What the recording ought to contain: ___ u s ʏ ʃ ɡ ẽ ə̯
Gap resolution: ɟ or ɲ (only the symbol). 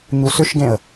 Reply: ɲ